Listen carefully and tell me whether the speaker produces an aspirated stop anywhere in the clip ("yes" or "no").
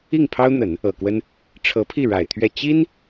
yes